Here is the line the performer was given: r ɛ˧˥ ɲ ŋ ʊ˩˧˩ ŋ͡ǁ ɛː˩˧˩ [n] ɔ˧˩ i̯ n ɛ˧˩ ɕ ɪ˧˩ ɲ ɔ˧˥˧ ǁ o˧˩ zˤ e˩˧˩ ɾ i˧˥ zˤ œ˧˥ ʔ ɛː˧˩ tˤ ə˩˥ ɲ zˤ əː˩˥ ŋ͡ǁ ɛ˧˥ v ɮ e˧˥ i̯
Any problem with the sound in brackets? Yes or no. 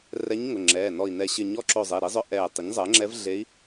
no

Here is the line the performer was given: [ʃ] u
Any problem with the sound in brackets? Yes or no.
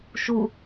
no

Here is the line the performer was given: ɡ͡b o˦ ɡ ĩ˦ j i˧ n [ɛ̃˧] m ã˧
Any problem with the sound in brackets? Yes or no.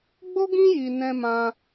no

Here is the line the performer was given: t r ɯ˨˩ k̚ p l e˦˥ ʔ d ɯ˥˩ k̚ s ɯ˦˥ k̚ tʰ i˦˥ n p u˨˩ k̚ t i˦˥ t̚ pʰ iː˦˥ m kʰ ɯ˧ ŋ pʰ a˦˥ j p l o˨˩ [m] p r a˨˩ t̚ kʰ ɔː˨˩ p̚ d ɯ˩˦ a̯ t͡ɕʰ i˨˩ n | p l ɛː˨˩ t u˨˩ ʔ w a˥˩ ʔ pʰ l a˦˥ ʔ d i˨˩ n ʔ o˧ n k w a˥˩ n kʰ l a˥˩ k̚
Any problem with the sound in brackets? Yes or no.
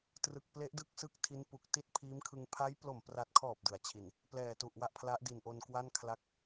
no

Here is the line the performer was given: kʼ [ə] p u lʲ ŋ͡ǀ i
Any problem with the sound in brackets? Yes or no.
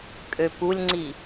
yes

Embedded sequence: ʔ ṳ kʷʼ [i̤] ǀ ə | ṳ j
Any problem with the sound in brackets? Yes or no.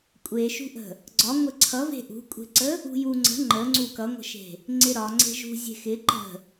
yes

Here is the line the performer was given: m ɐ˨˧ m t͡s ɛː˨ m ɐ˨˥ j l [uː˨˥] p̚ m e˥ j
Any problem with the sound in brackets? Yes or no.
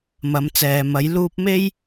yes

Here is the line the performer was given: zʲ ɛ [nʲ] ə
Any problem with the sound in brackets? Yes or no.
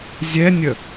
no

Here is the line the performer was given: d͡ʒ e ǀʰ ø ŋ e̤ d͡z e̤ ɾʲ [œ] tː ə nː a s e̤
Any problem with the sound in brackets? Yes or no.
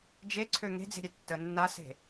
yes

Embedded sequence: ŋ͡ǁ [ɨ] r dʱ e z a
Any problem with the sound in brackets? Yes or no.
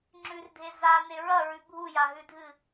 yes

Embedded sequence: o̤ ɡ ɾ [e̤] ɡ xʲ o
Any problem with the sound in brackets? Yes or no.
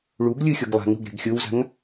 no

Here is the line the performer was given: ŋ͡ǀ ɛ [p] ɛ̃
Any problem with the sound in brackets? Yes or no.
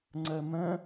yes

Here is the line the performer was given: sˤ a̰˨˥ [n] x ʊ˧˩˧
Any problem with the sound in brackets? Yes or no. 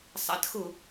yes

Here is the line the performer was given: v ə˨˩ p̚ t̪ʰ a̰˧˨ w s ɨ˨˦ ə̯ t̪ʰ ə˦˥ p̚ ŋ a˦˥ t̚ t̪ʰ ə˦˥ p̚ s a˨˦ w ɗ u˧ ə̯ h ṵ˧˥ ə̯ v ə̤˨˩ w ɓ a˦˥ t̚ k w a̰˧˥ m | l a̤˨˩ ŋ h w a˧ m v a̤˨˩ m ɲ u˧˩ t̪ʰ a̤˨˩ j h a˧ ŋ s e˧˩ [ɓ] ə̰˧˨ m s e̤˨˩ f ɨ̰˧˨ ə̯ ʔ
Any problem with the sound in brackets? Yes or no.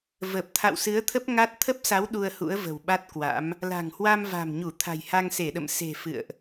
yes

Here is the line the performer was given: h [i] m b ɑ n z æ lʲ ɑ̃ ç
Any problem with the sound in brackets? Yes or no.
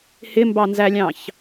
yes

